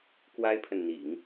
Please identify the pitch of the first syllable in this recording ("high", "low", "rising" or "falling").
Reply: high